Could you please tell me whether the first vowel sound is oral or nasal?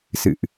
oral